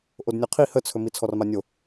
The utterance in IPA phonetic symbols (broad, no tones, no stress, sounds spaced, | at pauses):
ʔ o d nʲ ɔ qʰ i h ə t͡sʰ ɵ m i t͡sʰ ɔ r m a nʲ o